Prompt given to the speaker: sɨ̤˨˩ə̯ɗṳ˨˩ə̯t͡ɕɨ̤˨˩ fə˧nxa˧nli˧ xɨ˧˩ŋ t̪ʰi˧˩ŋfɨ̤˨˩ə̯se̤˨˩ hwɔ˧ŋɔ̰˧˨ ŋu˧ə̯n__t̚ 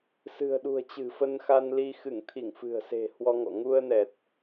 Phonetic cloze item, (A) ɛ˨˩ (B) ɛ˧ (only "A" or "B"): A